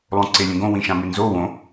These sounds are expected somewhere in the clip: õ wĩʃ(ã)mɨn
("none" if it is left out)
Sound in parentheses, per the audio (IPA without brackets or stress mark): ã